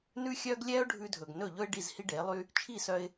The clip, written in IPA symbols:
nʉ˥xʲœː˥ɡ lʲɛː˥ʊ̯ɖʱʉ˧dʱɵ˩ɡ nɵ˥˩ʎɵ˥ɪ̯ ɖi˥˩zhi˥ɖe˩˥lˠy˥ | t͡ʃʰi˥˩sœ˧ɪ̯

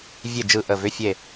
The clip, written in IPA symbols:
vʲe˧˩ d͡ʒɯ˧˩ʔə˧˩vʏ˧˥˧ fʲe˧˩

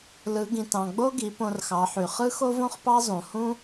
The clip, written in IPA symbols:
lɯ˩˧ɡĩ˩tɑ̃˩ɡ͡bo˥ ɡi˩˧põ˧rxɑ˩˧ħy˩ χɯ˥xo˥võ˥χpɑ˥ zˤũ˩hũ˥

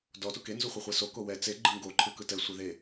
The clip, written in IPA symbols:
dɔ tuke nzuχʷeχʷeso kowɛ t͡se ɡ͡ǃɯŋɡo ǃʰɯkɯtɛ sʷeðe

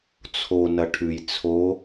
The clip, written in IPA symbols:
t͡sʰo nɐʈʰʉj t͡sʰo

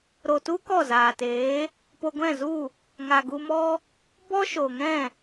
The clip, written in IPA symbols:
ɾo˨tu˦ kɔ˦˨zaː˨teː˨˦ | po˧ɡʷɛ̃˦˨zu˦˨ | ŋa˨ɡu˧mɔ˦ | bɔ˦ʃo˨ŋɛ̃˦˨

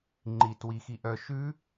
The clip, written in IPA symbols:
ŋ͡ǃit wixi ʔœ ʃʉ

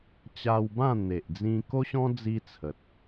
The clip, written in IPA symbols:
t͡ɕa˧wbã˥˧n̪e˨ʔd͡zĩ˧ ko˦ɕɔ̃˦ d͡zi˦t͡sʰə˨t̚

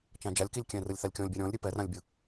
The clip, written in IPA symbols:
t͡ʃãd͡ʒalʲkilʲkʲɛ̃ rɯlʲθalʲkʲɔ̃lʲbʲa ɾʲɔ̃lʲ ɾʲɯpɛrãlʲbʲɯ

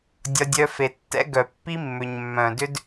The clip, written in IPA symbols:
dʲɒ˦dʲœ˦fe˧ tːɛ̰˦ɡœ˨pːi˦mːʏ˨ɲ mːœ̃˨dʏ˦d

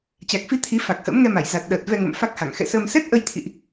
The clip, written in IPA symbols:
t͡ɕa˨˩k̚fi˧ t̪ʰi˨˦ fa˨˩k̚hə̰ː˧˥mŋɛ˧ma˧˩j za˨˩t̚ɗəː˨˩t̚ vɛ˧ŋə̰˧˨m fa˦˥k̚ha˧˩ŋ xɛ̰˧˨səː˧m sɛ˦˥t̚ʔə˧jt̪ʰḭ˧˨ʔ

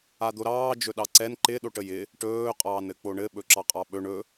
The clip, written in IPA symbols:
ad̪oɾɑː d͡ʒɵɗɑǀɛn ǃɪ ɗoʈəjɪ | ʈɵː qʼɑːnɘk͡poɳɘ ɓɵǁɑqʼɑɓɵ ɳɵ

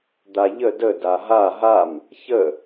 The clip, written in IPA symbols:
d̪aʎə də daɦa ɦam | çə

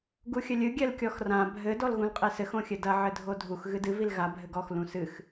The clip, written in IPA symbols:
ɡuxʲɘlʲɨ ɡʲɛlkʲɔxrã bʱɘ dɔlɣũlqʼesɘx õxʲɘdɐ ʕɘdʱodʱux ɣɨdɨ vilɣa bʱɘɡɔx lũsɨx

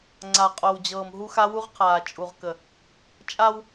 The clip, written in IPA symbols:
ŋ͡ǀa˨qʼo˨wd͡ʑɤː˨m ɦu˦xa˦ wu˦ʁqʰaː˨ t͡ʃʼu˨ʁkə˨ | t͡ʃʼa˦w

